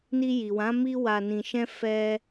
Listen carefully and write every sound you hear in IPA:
n i˧ j i˨ w ã˨˦ m i˦ w a˧ n ĩ˧ ʃ ɛ̃˦ f ɛ˦

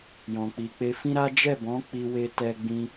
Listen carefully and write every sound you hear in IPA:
j ɔ̃˨ k͡p i˨ k͡p e˧ f ĩ˦ ɾ a˦ d͡ʒ ɛ˦˨ b ɔ̃˨˦ k͡p i˧ w e˧ t ɛ˦ ɡ͡b ĩ˦

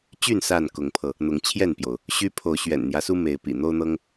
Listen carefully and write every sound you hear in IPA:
t͡ɕ y˥˨ n s a˥˨ n k ʊ˨˦ ŋ pʰ ɤ˧ | n̪ ʊ˨˦ ŋ t͡ɕʰ j ɛ˥˨ n p j o˩ ʊ̯ | ɕ y˦ pʰ o˨˦ ʊ̯ ɕ ɥ ɛ̰˨˩ n n̪ j ä˦ s u˦ m e˨˦ ɪ̯ p ḭ˨˩ n̪ o˦ ʊ̯ n̪ ɤ˦ ŋ

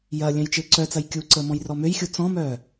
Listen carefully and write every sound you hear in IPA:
j ɐ lʲ œ̃ j t͡ʃ ɪː ǀ œ t͡s ɐ j kʲ u ǀ əː m ɔ̃ j r ɔ m ø j xʲ u t͡s ɔ̃ m œː

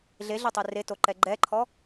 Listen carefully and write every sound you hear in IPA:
ɮ e ɮ ɛ tˤ e r e t o ǃ ɛ ɡ͡ǃ ɛ ǃʰ ɔ

